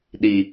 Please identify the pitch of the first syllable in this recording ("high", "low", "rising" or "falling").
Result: low